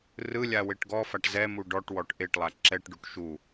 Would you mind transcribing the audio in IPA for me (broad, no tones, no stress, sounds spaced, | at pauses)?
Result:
r ɯ lʲ a w e ʈ ɡ ɔ f a ʈ z ɛ m u ɖ ɔ ʈ w ɔ ʈ ʔ e ʈ lˠ a ǁ ɛ ʈ ɖ u ʈ ʃ u